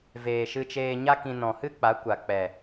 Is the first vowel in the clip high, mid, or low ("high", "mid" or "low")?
mid